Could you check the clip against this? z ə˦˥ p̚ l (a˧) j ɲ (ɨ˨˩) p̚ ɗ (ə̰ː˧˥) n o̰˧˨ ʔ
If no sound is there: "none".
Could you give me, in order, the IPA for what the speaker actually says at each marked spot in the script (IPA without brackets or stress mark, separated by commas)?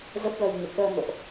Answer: ə˧, ə˨˩, əː˧